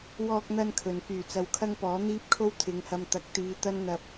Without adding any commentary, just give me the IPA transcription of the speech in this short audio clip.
w ɔː˧ k̚ n̪ ɐ˧ n kʰ ɵ˨ n k yː˨˩ t͡s ɐ˨ w kʰ ɐ˥ ŋ p ɔː˨˥ n̪ iː˥ p̚ kʰ o˥ w t̪ʰ ɪ˨˧ ŋ h ɐ˧ m t̪ ɐ˨˥ k̚ t̪ iː˨˧ t̪ ɐ˥ n n̪ ɐ˧ p̚

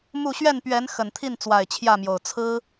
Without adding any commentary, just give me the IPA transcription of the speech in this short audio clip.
m u˥˨ ɕ ɥ ɛ˥˨ n p ɥ ɛ˨˦ n x ə˨˩ n t̪ʰ i˥˨ n t͡s w a˨˩ ɪ̯ t͡ɕʰ j ä˥˨ m j o˨˩ ʊ̯ t͡sʰ ɹ̩˦

